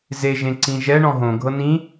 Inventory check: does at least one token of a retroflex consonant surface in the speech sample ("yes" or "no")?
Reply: yes